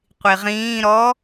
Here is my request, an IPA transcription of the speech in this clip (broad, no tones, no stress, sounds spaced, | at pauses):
qʷ i ʁ ĩː ɾ ɔ